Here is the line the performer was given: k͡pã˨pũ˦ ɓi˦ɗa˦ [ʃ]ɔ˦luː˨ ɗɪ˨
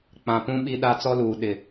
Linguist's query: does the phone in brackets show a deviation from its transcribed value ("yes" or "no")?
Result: yes